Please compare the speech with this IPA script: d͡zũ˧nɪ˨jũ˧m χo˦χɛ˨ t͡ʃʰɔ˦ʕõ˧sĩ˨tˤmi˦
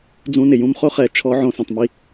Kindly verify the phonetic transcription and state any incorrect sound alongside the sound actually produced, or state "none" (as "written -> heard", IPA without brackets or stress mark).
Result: none